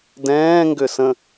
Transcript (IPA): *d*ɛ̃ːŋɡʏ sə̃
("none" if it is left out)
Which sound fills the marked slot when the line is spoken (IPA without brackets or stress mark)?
d